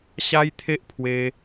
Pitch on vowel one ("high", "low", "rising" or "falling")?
high